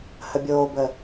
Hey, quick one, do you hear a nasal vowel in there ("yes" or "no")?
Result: no